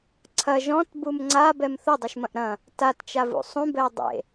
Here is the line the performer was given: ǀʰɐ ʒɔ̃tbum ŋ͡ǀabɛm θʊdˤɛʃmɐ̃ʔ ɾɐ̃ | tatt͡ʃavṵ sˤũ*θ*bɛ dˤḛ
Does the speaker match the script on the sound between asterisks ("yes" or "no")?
no